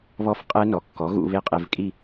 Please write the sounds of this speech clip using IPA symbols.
β ɔ˦˥ f qʼ ɛ˦˥ n ɔ˩˥ kː ɔ˩˥ ɣ ṵ˥˧ β e˥˧ qʼ e˧ v kʼ i˥˧

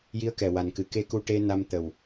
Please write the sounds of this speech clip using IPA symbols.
j i˧˥ ə̯ k ɛ˨˩ w a˨˩ n k ɨ˨˩˦ k e˧ k u˧ ʈ e˧ n a˧ m t̪ ə˨˩ w

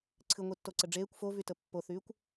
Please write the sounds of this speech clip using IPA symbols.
ǀʰ ɨ ŋʷ i tː o ǀ ə ɖ͡ʐ eː kʷ f o v y t ə pː o θ yː kʷ

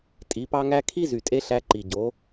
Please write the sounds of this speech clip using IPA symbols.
tʼ i˨˦ p ɑ˦ ŋ æ˦ kʰ i˦ z y˨ tʼ e˧ ɬ æ˧ ǃ i˨ ɟ o˨˦

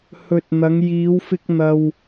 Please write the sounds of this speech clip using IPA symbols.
h ɵ˨ t̚ n̪ ɐ˨˧ ŋ j iː˨˧ w f ɪ˧ k̚ n̪ ɐ˧ w

